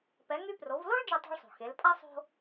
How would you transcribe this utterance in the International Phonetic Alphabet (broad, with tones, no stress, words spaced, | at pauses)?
pɛ˩˧ŋy˧ pro˩˧vlo˥ɭ d͡ʒe˧tˤo̤˧ɭsˤo̤˩ xe˩˧lpʼa˥ sˤo̤˧